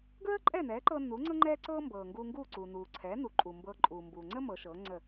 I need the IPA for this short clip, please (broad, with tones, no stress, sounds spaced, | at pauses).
ɡ ɹ əː˥ ǃʼ ɛː˥˩ n ɛː˩˥ ǃ ɤː˧ n uː˩˥ ŋ͡ǀ ɤ˥ ŋ͡ǃ ɛː˥ ǀ ɤː˥ m b ɤː˩ ŋ ɡ uː˧ ŋ ɡ uː˥˩ ǀ uː˩ n uː˩ ǀʰ ɛː˩˥ n u˩ ǃʼ u˩ m b ɤː˧ ǃʼ uː˩ m b uː˩ ŋ͡ǀ əː˥ m ɤ˩˥ ʃ ɤː˩˥ ŋ͡ǀ ə˥˩